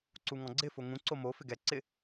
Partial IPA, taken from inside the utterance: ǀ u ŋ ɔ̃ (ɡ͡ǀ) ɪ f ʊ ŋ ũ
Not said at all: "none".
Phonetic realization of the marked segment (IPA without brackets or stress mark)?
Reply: ɡ͡ǀ